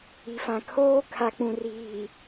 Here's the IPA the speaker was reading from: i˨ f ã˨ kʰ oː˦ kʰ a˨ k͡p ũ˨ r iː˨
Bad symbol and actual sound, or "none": none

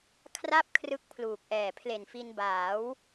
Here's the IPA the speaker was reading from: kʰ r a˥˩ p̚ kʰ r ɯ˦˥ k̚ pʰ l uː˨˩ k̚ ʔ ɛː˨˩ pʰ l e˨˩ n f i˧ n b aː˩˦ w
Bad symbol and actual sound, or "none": none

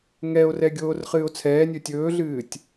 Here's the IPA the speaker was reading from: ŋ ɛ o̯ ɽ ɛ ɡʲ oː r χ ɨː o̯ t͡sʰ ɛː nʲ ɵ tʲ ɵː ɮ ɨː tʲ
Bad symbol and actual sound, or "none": ɽ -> r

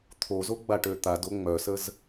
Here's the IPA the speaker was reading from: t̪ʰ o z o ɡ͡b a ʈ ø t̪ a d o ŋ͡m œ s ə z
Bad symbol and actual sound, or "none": none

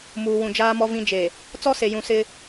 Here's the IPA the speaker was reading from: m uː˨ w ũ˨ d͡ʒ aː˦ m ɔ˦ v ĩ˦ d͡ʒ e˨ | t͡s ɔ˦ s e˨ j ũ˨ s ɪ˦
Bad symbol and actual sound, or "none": none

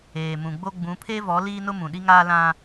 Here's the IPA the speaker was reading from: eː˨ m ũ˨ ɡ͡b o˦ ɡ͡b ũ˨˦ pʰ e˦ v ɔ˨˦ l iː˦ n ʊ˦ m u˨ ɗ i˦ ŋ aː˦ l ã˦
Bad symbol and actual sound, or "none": u˨ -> ũ˨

